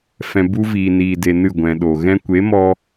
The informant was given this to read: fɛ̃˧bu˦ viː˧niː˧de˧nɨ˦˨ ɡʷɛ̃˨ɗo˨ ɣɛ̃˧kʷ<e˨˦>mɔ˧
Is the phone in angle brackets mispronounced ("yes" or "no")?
no